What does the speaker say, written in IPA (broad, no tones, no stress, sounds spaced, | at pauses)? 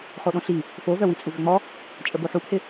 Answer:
χ o ɗ õ ɬ i | f o v œ w i t͡sʼ u v ʏ ŋ͡m ɔ | t͡ʃʼ ə b o ħ u p h ɪ